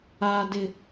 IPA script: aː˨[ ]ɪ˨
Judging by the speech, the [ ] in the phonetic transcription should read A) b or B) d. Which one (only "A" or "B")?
B